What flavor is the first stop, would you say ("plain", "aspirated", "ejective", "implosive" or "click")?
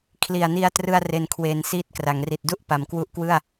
aspirated